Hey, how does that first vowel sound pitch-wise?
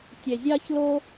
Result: low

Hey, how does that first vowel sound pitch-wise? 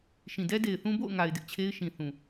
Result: low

